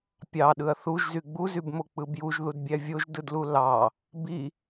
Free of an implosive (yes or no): no